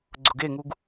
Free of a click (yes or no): no